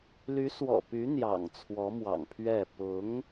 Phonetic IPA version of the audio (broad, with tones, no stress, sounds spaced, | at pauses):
l y˧˥ s w ɔ̰˨˩ p y˧˥ n̪ j ɑ̰˨˩ ŋ t͡sʰ w ɔ˧˥ m w ɑ̰˨˩ ŋ pʰ ɥ ɛ˥˩ p ʊ˧˥ ŋ